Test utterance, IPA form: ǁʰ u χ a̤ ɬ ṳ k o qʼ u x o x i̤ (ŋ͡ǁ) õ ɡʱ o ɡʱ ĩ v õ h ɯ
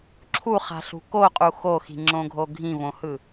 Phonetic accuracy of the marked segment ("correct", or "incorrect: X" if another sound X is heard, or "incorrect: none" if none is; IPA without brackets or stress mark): correct